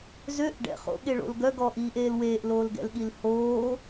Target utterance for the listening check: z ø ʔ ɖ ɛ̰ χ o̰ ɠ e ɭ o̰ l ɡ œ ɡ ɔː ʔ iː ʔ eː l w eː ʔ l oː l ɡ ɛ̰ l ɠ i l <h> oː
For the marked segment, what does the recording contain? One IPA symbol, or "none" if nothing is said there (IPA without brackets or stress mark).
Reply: h